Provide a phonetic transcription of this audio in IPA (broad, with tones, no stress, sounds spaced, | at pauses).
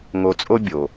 ŋ o˧ t͡sʼ o˥ bʲ o˩